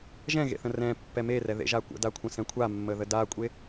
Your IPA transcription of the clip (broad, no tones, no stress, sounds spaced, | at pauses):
ʒ ɛ̃ ɣ ḛ θ ə̃ r ɛ̃ pː ɛ m e r ɛ ð ḛ ʒ a kʷ ə̰ d a kʷʰ ə̃ s ɛ̃ kʷʰ a mː ə ð ə d a kʷʼ e